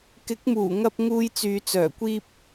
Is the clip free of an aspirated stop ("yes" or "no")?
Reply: yes